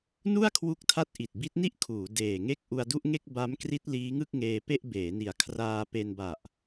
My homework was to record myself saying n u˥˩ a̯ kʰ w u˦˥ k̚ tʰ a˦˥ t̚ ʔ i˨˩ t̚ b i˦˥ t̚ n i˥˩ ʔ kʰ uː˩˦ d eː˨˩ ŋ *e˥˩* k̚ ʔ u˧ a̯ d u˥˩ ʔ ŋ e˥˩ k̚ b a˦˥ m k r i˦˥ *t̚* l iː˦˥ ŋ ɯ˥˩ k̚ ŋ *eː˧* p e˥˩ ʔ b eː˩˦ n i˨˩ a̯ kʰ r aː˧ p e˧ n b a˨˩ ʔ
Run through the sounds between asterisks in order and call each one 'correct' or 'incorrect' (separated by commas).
correct, correct, correct